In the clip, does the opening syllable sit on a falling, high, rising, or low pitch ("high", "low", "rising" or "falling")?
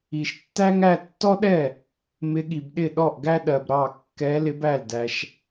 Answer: low